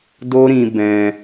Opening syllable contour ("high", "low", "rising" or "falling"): high